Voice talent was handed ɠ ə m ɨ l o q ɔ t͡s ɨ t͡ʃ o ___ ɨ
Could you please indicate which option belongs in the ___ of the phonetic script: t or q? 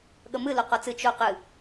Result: q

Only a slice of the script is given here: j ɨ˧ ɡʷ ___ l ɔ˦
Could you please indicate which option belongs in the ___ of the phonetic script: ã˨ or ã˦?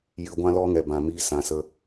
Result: ã˦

